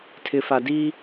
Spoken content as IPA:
tʰ ɪ˨ f a˨ d i˦

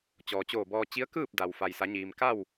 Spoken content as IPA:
t͡ɕ ɔː˩ t͡ɕ oː˧˩ b ɔː˧ t͡ɕ i˧˥ ə̯ k ɯː˥˨ p̚ d a˩ w f a˩ j s a˩˧ ɲ iː˩ m k a˥˨ w

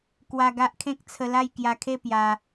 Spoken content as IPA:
k w a˧ ɡ a˦ ʔ kʰ ẽ˦ k̚ t͡sʰ ə˧ l a˥˧ j k j a˧ kʰ e˥˧ p j a˧

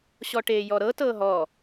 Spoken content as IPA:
ɕ ɔ ʈ eː j ɔ ɾ ɤ t ɤː ɦ ɔː

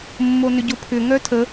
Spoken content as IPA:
mː o n ʏ ɟ ʊ pʰ ʏ ŋ œ tʰ ə

